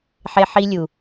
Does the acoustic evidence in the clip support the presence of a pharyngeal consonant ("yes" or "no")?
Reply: yes